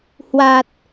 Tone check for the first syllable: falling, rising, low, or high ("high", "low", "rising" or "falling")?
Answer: low